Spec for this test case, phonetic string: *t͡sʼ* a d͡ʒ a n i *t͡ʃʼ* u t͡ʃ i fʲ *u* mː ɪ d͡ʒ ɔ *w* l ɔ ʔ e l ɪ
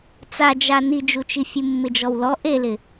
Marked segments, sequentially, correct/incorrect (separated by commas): incorrect, incorrect, correct, correct